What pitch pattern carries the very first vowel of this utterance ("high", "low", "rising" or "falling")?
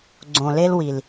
low